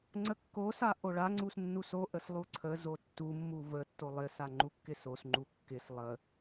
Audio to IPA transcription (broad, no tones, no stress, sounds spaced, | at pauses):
ŋ͡ǀ ə kː o s a ʔ o ɭ a ŋ͡ǀ u s nː u s o ʔ ə s lˠ u ǀʰ ə z o tː u mː u v ə tː o lˠ ɪ s a ŋ͡ǃ u kː ɪ s o s ŋ͡ǃ u kː ɪ s lˠ ə